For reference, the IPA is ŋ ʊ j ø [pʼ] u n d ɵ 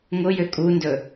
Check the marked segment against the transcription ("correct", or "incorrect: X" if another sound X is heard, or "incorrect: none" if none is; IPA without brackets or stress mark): incorrect: kʼ